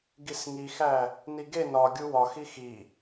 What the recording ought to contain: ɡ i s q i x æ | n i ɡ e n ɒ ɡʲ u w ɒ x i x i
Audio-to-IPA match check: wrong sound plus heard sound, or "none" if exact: q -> ŋ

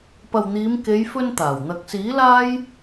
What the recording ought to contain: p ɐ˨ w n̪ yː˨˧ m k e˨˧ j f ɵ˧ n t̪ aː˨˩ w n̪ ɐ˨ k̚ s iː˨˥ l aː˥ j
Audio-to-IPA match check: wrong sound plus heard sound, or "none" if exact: yː˨˧ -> iː˨˧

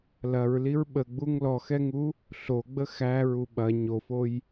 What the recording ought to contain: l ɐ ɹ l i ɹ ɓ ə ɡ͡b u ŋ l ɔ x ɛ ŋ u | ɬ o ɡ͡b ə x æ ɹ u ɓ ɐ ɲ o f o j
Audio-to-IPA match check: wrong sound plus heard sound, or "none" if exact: none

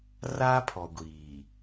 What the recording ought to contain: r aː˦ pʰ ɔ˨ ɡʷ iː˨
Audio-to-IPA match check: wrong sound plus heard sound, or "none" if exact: none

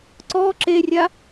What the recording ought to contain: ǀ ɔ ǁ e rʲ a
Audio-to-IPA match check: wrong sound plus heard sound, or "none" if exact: none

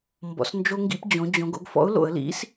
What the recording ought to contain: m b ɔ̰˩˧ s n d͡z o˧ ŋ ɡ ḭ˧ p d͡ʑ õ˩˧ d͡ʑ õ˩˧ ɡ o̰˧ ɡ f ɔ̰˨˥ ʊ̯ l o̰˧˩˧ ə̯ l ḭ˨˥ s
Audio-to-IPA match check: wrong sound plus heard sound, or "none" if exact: d͡z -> d͡ʒ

